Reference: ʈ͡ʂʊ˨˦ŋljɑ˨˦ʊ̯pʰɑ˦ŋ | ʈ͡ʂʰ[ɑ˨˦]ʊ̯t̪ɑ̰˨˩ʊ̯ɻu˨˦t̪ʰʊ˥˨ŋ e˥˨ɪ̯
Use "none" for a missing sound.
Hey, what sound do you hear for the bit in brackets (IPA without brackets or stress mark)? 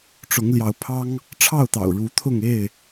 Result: ɑ˥˨